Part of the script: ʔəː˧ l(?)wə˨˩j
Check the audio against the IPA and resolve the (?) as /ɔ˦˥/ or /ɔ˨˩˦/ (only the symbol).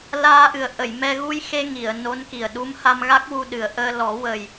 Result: ɔ˨˩˦